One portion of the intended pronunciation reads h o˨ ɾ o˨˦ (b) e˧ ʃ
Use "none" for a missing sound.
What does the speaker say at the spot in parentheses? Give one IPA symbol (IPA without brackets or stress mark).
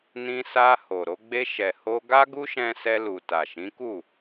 ɡ͡b